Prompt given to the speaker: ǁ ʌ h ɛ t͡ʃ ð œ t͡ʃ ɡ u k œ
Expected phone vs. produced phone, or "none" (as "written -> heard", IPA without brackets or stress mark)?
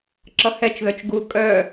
k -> kʼ